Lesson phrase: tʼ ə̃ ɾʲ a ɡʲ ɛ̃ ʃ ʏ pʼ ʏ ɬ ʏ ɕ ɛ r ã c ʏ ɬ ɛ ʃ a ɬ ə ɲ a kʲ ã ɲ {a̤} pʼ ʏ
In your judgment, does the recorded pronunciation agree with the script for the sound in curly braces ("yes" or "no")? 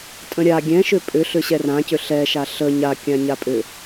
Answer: no